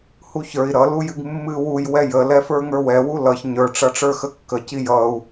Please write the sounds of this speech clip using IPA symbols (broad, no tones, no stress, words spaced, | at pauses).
huçə˞i̯ ɾʌ lujɨɡmːɨ wuj wɛjə lɛfə˞ŋə˞wɛ wulʌç ɲə˞ ʈ͡ʂʌʈ͡ʂə˞xəkːə cijʌu̯